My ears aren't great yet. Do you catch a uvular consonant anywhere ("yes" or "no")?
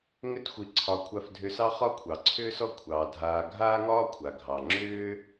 yes